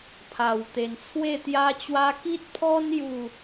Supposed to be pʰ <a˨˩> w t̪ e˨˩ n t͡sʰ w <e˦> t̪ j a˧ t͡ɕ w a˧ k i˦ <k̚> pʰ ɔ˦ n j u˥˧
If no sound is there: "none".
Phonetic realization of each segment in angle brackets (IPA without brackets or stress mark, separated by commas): a˨˩, e˥˧, t̚